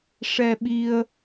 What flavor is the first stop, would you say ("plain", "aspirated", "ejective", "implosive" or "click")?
implosive